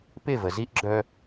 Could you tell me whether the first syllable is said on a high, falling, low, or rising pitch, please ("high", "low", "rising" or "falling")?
falling